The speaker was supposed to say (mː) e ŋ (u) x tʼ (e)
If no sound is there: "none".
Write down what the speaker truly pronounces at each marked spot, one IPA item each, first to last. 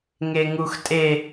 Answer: ŋ, u, e

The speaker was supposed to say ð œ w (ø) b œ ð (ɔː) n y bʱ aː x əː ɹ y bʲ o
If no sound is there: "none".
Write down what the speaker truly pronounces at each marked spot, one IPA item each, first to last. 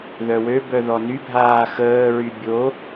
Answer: ø, ɔ

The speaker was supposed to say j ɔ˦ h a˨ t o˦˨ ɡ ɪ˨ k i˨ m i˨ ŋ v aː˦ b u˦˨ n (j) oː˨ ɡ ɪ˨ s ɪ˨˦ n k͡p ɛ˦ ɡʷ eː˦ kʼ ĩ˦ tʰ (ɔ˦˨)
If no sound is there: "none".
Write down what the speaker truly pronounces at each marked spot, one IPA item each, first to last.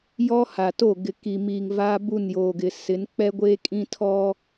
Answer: j, ɔ˦

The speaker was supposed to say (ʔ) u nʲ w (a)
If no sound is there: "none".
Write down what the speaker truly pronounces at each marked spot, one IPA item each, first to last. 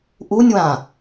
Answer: ʔ, ã

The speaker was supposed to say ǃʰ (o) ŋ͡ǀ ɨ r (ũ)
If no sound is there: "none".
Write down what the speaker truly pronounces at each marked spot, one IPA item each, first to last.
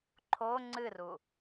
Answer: o, u

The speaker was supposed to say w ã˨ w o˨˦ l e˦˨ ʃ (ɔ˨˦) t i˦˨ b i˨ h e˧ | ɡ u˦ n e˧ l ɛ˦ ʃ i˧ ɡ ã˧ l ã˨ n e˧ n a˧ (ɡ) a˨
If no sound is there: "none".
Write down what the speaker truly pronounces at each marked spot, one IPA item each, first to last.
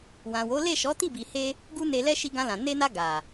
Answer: ɔ˨˦, ɡ

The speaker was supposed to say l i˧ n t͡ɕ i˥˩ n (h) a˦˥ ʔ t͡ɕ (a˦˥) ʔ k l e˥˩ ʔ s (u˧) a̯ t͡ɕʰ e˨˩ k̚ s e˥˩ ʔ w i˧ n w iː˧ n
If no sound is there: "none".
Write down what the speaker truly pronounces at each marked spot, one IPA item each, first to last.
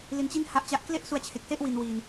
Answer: h, a˦˥, u˧

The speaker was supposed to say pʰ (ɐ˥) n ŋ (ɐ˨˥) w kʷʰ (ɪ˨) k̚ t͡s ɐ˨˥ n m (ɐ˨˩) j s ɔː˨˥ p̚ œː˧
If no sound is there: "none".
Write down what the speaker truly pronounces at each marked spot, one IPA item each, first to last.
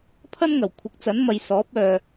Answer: ɐ˥, ɐ˨˩, ɪ˨˥, ɐ˨

